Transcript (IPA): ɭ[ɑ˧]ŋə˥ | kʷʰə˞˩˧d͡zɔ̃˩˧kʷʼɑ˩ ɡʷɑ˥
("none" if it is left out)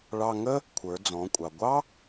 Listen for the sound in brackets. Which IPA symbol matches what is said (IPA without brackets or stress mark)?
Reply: ɑ˧